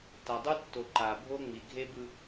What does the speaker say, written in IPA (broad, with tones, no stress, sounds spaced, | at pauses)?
t a˨ dˤ u˦ tː o˨ ǃ a˨ bʱ o˦ ŋ͡m i˨ ɡʱ e˦ b ɯ˦